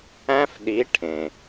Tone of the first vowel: high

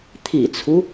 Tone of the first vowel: low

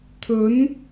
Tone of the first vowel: rising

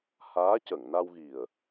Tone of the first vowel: rising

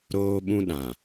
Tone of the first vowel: high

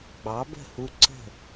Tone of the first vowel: rising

